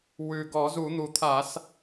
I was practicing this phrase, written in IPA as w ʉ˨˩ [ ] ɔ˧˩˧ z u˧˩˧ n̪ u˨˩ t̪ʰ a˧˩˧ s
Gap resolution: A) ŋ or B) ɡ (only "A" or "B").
B